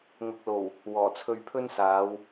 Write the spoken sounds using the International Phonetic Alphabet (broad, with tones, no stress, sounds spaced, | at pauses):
ŋ ʊ˨ k̚ l o˨˩ w | w ɔː˨˩ t͡sʰ ɵ˧ ɥ pʰ ɵ˥ n s aː˨˧ w